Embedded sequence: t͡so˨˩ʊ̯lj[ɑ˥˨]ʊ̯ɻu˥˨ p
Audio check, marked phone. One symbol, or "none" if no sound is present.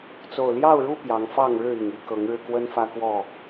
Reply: ɑ˥˨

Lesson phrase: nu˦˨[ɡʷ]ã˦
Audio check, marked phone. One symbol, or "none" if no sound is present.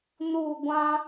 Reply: ɡʷ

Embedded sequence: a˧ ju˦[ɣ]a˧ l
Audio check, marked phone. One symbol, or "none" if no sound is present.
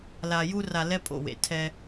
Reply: r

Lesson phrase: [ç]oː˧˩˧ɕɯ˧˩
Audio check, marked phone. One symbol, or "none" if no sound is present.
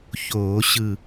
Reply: ç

